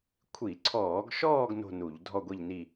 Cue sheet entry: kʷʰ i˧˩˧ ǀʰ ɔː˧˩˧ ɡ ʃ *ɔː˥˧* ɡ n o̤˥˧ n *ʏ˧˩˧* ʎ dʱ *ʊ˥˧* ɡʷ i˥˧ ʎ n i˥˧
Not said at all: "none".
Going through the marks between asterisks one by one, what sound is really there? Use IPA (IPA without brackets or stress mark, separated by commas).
ɔː˥˧, u˧˩˧, ɔ˥˧